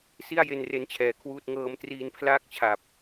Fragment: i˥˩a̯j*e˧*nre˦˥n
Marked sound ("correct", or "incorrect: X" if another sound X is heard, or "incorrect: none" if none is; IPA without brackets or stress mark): correct